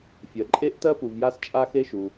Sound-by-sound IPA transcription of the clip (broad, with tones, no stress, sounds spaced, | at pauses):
fʲ ɜ˩ ǃʼ e˥ ʔ t ɜ˥ p u˩ v j a˥ s t͡ʃʼ a˥ x e˥ ʃ u˩